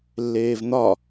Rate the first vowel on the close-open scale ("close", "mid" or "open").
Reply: mid